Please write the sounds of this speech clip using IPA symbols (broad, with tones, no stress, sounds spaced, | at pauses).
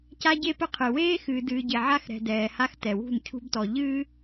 c a˦ ɟ e˦ p ɘ˦ qʰ ɨ˨ w eː˦ x ɨː˨ d ɨː˨ ɟ e˨ ʕ a˦ x ɾ ɛ̤˨ d ɛː˨ h a˦ x t ɛ˨ w ṳ˦˨ n cʰ ṳ˦ b t ɔ˨ ʎ ɨː˦